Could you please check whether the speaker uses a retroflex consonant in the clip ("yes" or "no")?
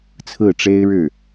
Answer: yes